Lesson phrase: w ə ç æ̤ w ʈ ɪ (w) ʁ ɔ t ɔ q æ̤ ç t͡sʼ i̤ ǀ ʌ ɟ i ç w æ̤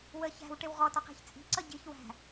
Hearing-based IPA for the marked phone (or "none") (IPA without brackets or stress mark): w